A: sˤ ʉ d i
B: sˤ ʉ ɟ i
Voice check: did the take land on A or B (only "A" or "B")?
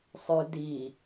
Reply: A